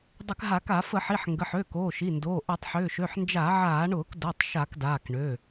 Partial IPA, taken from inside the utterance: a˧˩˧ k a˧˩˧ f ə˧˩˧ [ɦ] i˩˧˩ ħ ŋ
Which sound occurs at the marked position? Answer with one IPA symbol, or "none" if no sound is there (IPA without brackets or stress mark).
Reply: ħ